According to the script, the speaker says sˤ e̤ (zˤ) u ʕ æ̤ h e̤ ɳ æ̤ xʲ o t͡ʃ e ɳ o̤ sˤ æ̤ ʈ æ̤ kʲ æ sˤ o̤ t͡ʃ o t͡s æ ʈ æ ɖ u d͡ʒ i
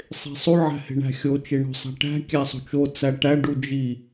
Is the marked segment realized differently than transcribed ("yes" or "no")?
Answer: yes